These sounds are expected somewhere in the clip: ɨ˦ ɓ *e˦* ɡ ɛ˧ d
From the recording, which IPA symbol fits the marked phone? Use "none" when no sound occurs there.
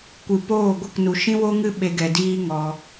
e˦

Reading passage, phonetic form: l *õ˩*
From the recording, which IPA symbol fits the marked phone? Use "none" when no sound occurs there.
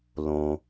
õ˩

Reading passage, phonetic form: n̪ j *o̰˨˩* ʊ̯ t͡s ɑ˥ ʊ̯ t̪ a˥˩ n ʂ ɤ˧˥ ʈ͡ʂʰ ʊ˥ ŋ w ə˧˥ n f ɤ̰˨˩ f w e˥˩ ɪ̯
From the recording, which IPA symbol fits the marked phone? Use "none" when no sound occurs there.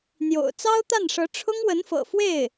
o̰˨˩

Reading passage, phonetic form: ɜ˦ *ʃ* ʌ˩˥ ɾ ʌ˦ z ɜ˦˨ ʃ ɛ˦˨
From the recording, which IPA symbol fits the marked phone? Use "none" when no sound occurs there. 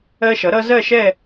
ʃ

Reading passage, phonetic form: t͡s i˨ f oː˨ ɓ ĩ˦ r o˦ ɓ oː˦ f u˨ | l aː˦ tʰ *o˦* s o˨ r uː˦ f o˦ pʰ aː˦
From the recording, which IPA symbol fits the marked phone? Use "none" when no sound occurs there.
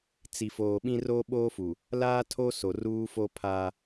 o˦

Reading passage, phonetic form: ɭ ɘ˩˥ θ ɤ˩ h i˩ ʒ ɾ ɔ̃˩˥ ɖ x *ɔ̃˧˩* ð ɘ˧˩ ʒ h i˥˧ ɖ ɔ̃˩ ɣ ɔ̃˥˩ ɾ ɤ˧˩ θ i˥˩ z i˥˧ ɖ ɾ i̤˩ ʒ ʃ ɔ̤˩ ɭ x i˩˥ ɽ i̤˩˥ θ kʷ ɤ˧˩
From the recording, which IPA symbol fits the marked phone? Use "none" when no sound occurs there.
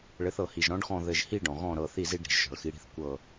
ɔ̃˧˩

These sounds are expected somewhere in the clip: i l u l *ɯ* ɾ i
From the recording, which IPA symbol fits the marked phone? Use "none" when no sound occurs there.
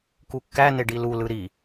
ɯ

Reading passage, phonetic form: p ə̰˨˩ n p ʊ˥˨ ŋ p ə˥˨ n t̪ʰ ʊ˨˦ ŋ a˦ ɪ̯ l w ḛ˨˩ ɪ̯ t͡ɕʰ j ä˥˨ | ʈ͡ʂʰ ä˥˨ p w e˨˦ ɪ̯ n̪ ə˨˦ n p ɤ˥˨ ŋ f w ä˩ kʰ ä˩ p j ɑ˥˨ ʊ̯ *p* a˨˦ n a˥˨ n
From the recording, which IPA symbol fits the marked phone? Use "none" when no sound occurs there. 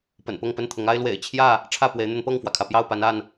p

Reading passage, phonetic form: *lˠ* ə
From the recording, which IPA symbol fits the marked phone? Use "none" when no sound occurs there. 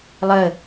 lˠ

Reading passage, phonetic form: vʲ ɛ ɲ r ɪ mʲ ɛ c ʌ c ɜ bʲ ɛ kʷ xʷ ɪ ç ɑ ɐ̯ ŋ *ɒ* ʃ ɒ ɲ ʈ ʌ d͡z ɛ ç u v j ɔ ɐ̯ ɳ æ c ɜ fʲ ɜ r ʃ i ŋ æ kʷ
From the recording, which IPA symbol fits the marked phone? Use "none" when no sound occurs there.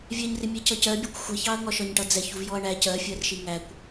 ɒ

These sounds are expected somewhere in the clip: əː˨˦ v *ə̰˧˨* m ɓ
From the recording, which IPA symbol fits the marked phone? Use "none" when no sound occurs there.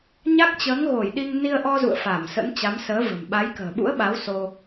ə̤˨˩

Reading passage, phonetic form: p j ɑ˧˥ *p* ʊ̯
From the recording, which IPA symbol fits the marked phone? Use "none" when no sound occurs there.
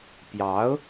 none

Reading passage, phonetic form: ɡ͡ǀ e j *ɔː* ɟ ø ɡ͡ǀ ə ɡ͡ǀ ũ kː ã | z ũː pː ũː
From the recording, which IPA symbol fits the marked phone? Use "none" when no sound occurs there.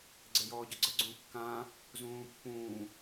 ɔː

